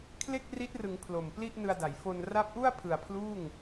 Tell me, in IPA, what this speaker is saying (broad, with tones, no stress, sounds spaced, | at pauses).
kʰ l e˥˩ k̚ r i˦˥ t̚ r ɯ˩˦ ŋ pʰ l o˨˩ m p l i˥˩ ʔ n ɯ˧ a̯ d a˩˦ j f o˧ n r a˦˥ p̚ ʔ u˥˩ a̯ pʰ ɯ˨˩ a̯ pʰ l uː˥˩ ŋ